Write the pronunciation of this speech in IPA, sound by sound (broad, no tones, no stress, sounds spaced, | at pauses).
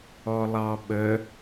ɔ lˠ ɑ ɓ ə